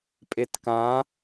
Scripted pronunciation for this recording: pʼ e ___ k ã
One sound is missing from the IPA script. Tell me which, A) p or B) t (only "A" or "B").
B